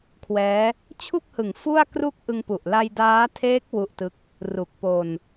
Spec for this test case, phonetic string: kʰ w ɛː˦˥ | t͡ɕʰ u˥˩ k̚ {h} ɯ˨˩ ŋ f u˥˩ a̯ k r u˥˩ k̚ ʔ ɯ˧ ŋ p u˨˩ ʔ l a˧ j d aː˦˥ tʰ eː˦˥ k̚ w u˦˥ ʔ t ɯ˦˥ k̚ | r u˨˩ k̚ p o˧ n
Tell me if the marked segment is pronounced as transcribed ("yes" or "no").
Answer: yes